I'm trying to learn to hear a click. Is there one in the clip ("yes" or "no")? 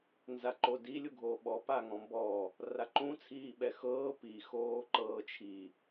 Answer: yes